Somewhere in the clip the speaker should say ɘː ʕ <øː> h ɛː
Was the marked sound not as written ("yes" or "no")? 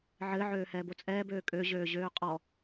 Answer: no